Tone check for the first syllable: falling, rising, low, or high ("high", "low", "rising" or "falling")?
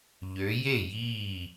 rising